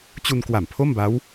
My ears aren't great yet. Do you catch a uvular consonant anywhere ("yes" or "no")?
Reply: no